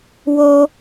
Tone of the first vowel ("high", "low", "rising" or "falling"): high